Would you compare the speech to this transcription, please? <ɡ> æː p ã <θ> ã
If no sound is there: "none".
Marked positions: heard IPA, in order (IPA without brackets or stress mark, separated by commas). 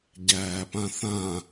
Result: ɟ, θ